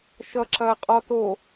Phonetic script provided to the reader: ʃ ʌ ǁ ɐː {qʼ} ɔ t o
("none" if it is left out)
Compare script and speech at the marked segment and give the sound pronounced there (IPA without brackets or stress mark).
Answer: qʼ